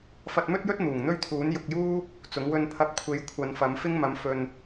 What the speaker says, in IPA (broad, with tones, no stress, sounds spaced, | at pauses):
f ɐ˧ t̚ m ɵ˥ t̚ j ɵ˥ t̚ n̪ uː˨˩ ŋ n̪ ɵ˥ ɥ t̪ʰ uː˨˥ n j ʊ˨ k̚ j uː˥ | t͡s ʊ˨˥ ŋ w ɵ˧ n pʰ ɐ˧ p̚ kʷʰ e˨˧ j kʷʰ ɐ˨˧ n f ɐ˨˥ m f ɪ˥ ŋ m ɐ˨˥ m f ɵ˧ n